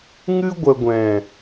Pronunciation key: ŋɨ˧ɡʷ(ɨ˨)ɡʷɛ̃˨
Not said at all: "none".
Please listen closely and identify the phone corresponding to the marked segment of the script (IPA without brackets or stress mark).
ə˨